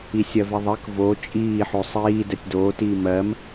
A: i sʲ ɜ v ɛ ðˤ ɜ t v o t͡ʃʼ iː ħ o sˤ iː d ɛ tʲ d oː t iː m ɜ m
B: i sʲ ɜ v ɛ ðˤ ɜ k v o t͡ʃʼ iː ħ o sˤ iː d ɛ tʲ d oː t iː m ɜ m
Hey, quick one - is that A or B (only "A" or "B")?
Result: B